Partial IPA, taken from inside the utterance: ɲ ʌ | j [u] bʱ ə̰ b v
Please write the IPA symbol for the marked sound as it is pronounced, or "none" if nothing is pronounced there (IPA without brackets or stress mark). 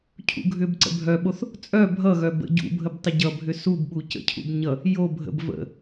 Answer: o